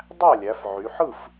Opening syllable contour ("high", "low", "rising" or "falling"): falling